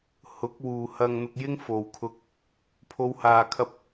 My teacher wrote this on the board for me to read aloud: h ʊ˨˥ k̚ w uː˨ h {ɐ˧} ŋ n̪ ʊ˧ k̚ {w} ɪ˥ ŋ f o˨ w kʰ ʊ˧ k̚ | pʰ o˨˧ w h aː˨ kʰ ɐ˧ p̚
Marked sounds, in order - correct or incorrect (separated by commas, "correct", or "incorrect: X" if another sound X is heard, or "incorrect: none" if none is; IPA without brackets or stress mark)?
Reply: correct, incorrect: j